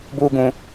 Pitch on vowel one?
high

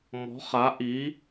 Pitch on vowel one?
rising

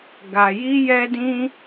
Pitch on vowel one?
low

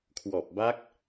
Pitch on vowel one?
low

